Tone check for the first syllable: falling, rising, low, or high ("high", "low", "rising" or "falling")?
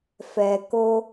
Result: low